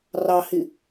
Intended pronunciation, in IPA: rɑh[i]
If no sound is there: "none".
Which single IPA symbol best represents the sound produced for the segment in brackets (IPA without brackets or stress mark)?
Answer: i